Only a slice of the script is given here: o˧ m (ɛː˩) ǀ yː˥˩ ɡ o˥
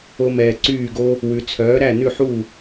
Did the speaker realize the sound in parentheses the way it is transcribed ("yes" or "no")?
yes